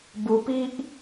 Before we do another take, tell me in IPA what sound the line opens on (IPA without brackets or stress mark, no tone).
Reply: b